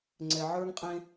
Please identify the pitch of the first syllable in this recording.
low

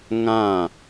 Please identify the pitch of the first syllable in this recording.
falling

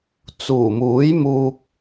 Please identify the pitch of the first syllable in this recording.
low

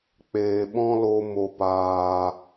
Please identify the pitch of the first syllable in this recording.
low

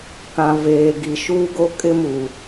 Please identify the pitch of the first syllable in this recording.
low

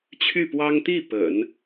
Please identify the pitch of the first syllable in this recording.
falling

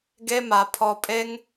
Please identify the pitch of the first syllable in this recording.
high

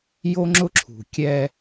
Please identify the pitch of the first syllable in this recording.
high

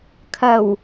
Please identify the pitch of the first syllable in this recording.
low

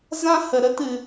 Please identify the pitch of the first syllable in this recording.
high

